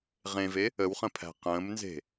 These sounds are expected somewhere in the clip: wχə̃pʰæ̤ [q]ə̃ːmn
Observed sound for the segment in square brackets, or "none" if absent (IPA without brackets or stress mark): q